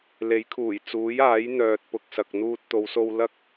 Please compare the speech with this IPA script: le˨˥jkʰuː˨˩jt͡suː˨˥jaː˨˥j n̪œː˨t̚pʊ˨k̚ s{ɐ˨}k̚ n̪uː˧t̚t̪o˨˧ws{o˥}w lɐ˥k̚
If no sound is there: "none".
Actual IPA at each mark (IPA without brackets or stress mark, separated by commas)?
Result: ɐ˨, o˧